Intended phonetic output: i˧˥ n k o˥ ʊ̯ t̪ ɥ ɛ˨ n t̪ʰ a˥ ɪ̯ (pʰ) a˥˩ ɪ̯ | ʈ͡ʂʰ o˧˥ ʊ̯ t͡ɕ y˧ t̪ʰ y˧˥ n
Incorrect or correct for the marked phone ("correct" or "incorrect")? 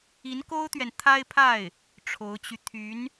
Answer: correct